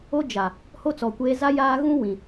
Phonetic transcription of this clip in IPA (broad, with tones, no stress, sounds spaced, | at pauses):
o˦ d͡ʒ a˨ | h o˦ t͡s ɔ˨ kʷ eː˦ z a˦ j aː˦ ɣ ũ˦ w ĩ˨